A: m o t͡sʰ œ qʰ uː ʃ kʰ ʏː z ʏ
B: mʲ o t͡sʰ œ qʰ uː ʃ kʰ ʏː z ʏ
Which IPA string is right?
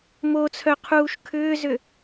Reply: A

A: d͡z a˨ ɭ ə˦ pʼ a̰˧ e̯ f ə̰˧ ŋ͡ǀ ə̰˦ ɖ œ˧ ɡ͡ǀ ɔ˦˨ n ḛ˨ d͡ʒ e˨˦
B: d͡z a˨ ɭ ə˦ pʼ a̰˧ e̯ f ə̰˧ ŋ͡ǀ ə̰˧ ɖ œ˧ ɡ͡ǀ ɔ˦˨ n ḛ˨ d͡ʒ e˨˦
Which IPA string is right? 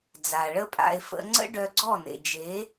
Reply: A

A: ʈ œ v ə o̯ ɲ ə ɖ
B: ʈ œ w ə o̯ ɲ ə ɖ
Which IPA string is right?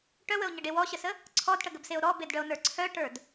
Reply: B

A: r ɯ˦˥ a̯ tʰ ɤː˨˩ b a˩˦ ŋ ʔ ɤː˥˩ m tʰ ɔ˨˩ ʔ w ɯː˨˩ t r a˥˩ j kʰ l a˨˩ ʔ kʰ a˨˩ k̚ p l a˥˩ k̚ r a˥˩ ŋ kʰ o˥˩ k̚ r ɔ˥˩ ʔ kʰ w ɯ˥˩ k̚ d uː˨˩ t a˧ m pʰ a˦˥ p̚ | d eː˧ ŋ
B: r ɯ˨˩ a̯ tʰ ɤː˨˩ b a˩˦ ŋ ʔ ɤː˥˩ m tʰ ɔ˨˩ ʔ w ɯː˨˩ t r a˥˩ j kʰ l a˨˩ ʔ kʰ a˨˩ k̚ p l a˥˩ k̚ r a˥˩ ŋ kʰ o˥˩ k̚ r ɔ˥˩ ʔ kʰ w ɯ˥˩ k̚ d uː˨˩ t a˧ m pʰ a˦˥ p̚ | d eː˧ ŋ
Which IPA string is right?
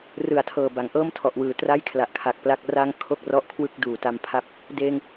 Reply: B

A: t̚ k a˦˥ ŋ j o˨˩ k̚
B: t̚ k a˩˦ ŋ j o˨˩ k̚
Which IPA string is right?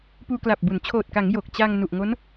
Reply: B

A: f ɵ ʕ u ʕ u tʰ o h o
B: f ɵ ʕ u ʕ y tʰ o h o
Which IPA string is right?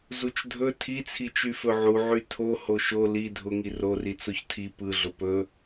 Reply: B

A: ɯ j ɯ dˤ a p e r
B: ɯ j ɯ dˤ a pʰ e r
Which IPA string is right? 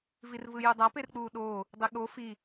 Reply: A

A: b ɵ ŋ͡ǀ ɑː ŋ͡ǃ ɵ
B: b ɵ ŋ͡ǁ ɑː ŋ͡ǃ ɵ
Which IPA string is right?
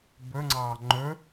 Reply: A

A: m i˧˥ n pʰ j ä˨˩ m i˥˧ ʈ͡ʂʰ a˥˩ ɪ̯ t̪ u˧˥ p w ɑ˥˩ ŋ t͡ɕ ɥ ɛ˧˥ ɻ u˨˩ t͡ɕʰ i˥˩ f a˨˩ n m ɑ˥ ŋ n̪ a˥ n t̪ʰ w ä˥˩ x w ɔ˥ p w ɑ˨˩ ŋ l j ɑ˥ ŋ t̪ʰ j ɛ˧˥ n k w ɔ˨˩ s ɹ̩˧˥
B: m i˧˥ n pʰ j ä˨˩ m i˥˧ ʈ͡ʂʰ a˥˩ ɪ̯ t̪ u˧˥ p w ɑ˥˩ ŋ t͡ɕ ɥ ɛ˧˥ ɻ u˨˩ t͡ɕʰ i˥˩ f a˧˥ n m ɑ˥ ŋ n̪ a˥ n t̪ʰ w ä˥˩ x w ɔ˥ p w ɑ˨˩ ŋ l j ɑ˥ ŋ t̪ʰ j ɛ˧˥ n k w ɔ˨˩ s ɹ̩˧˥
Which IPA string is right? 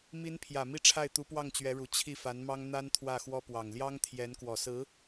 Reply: B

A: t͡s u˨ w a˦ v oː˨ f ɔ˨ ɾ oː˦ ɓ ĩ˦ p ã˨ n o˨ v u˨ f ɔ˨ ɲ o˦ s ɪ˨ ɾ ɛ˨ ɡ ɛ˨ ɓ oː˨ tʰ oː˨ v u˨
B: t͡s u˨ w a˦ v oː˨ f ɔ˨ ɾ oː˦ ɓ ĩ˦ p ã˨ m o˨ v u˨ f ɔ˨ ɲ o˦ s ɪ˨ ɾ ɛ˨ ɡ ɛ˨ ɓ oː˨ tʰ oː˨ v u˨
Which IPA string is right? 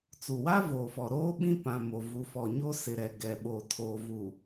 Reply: B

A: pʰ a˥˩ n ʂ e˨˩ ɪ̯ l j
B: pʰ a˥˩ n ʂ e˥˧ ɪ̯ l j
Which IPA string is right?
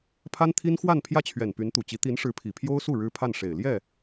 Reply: A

